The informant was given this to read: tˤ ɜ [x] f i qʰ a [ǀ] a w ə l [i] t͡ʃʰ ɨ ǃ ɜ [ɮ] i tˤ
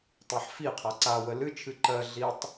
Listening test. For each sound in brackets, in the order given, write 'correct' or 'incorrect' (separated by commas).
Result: incorrect, correct, incorrect, correct